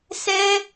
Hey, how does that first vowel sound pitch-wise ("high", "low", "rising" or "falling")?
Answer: high